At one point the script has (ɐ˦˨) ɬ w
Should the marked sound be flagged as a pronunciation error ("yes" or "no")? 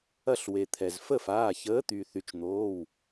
no